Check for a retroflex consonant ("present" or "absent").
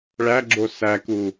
present